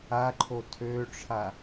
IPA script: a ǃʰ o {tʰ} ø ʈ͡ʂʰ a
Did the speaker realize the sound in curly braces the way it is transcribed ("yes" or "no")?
yes